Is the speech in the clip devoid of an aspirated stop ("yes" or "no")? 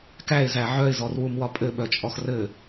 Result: yes